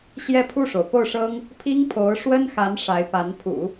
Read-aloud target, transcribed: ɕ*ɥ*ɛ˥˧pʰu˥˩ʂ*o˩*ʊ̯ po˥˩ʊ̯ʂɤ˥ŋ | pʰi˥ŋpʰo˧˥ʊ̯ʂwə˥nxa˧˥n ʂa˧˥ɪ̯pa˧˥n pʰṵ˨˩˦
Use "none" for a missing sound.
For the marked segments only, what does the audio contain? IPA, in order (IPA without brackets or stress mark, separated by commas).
j, o˩